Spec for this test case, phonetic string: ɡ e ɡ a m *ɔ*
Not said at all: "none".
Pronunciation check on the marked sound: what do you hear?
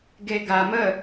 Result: ə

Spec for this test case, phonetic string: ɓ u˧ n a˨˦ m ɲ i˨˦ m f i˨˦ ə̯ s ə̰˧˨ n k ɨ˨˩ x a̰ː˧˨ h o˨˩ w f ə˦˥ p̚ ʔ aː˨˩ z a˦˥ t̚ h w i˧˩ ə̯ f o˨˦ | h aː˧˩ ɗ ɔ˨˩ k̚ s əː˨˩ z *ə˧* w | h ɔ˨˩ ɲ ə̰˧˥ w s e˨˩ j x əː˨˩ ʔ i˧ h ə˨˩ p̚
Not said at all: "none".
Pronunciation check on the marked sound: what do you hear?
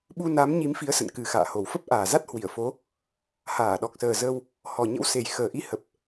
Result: ə˧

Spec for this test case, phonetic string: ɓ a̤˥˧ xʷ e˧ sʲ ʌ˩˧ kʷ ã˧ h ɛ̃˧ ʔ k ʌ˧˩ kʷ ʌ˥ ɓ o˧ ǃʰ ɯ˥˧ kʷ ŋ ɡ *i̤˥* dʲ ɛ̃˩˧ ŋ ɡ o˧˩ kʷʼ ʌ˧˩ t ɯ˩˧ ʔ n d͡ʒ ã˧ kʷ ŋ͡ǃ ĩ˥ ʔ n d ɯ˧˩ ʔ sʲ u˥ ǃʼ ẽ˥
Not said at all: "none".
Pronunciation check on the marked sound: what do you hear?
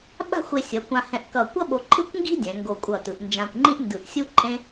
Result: i̤˥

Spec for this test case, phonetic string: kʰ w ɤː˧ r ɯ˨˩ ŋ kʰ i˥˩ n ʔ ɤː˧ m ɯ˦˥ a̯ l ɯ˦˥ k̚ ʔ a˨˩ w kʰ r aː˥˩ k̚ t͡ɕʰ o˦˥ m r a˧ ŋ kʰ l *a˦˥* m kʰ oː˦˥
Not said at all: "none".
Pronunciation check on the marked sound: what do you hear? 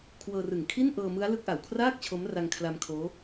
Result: a˧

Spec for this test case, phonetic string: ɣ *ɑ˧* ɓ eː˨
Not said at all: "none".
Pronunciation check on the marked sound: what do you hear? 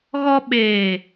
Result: ɔ˧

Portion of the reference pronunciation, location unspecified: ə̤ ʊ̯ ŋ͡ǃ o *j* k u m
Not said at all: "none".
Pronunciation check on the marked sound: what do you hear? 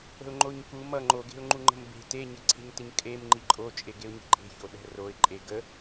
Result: ɲ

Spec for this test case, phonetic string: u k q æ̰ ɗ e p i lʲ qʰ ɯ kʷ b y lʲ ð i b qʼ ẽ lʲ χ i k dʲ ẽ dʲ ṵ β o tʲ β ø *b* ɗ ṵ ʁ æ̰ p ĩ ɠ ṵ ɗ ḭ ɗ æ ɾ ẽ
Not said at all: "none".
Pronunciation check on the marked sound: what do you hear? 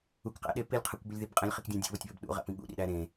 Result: b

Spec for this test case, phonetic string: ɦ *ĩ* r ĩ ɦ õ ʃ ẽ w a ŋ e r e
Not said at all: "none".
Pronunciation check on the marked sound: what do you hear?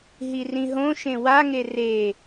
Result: i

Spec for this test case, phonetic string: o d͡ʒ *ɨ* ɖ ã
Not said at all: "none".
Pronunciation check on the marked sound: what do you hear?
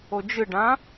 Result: ɨ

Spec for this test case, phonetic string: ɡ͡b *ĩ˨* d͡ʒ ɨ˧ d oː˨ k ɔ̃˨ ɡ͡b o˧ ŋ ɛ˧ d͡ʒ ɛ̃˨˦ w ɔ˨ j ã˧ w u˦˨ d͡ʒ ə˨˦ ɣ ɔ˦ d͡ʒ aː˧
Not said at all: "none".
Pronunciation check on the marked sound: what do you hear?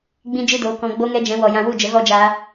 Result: ĩ˧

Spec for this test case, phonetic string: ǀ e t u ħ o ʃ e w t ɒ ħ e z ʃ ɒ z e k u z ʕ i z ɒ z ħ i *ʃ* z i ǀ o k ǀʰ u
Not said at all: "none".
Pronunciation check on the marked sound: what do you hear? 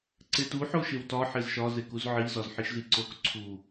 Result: ʃ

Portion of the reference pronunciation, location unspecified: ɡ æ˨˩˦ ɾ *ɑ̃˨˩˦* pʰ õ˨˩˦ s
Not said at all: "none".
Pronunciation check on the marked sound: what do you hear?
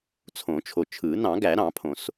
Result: ɑ̃˨˩˦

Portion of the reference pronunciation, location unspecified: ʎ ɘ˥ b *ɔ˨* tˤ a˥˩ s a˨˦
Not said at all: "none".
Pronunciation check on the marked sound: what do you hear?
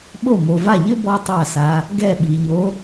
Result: ɔ˥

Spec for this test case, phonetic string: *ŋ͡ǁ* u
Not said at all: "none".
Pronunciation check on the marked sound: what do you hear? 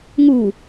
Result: ŋ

